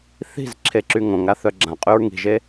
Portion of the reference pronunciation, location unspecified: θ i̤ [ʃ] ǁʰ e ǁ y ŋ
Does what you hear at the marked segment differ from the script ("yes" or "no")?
yes